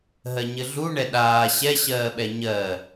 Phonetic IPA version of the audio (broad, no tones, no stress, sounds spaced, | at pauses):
ɦ ɜ ɲ ɘ ɮ u ɳ ɛ ɗ aː ɕ ɛ ɕ ɜː ɓ ɛ ɲ ɜ